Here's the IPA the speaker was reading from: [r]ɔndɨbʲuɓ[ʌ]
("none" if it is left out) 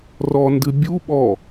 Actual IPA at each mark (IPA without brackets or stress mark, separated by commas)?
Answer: r, ɔ